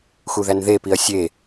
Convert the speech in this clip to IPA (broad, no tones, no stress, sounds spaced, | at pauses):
x u ð æ n ð e p i ɐ̯ sʲ e